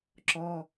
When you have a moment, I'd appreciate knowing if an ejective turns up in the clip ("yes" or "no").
no